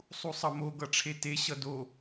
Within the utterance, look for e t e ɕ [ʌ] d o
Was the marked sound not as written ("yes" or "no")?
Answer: no